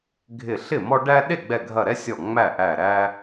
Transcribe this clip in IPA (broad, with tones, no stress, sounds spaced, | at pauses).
ɡʱ ɪ˧˩ ɬ ɪ˥˩ m ɔ˦ ɖ æ˦ ɗ e˥˩ ɡ͡b ɛ˧˩ ɡʱ ɐ˧˩ ɾ ɛ˦ sʲ ɔ˧˩ ŋ͡m æ˥˩ ʔ æ˧˩ ɾ æ˦